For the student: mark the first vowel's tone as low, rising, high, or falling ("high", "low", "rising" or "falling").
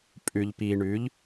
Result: low